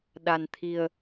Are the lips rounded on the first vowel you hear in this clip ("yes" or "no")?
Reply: no